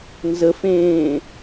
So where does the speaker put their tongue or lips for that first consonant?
tongue tip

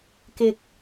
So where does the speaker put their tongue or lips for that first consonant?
velum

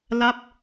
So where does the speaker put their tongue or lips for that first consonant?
tongue tip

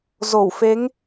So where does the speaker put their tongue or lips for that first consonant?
tongue tip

